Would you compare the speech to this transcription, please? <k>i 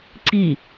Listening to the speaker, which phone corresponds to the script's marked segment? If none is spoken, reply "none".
ǀ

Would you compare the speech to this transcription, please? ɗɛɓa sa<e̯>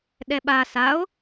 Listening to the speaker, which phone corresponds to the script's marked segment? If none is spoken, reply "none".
o̯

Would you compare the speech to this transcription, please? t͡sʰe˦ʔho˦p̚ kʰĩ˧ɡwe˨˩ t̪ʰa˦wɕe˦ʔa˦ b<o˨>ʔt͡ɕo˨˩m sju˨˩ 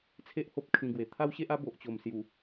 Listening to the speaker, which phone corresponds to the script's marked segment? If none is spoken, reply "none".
o˨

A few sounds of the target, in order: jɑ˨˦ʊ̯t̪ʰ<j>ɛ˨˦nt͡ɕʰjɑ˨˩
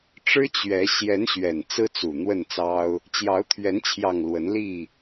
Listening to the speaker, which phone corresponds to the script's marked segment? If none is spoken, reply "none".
ɥ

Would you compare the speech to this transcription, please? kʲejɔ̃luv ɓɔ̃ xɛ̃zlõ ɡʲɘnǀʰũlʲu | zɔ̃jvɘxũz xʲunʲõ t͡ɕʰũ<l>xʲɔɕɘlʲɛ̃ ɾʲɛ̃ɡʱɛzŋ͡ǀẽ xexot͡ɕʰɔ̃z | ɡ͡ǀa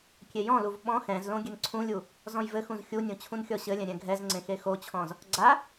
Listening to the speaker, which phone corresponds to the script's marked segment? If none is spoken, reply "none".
n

